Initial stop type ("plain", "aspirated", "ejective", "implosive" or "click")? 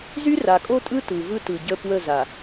ejective